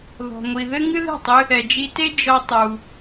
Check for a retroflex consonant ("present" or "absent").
absent